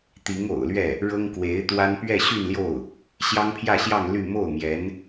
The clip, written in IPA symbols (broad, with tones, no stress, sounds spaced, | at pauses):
t̪ i˧˥ ŋ o̰˨˩ ʊ̯ l ɥ ɛ˥˩ | ɻ ɤ˥ ŋ k w e˧˥ ɪ̯ t̪ w a˥ n p ɥ ɛ˥˧ ɕ y˥˧ n l j o˥˩ ʊ̯ | ɕ j ɑ˥ ŋ pʰ j ä˥˧ ɕ j ɑ˥˧ ŋ l y˥˧ m o˥˩ ʊ̯ m j ɛ˧˥ n